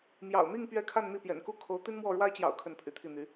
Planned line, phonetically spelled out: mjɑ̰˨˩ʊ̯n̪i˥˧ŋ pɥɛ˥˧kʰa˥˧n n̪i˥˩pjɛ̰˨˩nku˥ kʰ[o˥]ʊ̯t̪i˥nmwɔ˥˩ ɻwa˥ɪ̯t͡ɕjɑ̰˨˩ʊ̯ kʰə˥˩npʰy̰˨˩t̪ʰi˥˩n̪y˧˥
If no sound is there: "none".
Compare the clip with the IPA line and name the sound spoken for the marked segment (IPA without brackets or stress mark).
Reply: o˧˥